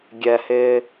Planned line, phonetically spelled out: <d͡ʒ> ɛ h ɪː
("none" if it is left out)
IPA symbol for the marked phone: ɡʲ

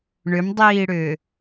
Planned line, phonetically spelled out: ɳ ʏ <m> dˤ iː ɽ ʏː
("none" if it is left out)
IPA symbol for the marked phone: m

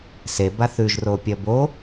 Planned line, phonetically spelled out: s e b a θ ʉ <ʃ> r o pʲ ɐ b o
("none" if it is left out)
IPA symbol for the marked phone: ʒ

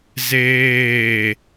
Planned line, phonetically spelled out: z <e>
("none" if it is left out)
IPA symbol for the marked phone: eː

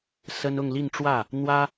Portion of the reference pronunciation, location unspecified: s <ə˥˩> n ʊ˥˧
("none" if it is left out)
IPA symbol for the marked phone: ə˥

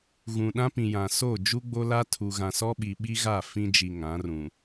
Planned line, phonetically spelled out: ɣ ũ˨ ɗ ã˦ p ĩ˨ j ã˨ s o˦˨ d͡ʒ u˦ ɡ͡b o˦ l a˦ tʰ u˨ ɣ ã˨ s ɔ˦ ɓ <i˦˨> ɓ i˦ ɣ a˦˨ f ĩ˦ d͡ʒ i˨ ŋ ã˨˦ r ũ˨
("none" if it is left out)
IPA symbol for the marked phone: i˨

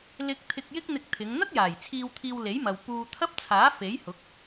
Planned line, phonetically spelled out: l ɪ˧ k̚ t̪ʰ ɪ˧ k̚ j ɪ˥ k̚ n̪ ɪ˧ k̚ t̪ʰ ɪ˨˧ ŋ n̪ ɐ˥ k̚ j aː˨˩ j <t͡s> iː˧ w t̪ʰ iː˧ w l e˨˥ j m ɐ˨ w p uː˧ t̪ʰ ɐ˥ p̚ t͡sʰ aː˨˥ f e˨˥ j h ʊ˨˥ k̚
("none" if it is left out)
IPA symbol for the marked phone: t͡sʰ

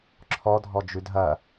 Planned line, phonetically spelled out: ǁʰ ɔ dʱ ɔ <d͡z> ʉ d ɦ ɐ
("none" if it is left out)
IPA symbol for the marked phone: d͡ʒ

